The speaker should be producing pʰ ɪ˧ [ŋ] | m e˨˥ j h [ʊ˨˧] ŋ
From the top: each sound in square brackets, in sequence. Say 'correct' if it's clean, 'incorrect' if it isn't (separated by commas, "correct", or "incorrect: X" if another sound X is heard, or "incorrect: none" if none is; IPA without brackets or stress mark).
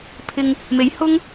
correct, incorrect: ʊ˥